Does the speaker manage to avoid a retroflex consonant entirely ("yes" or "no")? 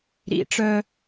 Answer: no